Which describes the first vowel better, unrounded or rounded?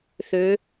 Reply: rounded